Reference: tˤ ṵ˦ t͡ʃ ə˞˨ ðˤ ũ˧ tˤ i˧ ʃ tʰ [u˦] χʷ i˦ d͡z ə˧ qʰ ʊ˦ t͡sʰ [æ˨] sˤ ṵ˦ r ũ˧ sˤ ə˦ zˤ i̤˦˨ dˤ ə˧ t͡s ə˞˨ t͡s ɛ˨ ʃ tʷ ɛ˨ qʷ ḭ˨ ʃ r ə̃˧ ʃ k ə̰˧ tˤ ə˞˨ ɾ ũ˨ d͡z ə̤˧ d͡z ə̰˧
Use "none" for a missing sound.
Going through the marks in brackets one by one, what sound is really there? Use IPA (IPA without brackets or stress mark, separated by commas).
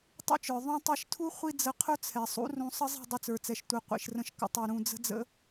u˦, ɛ˨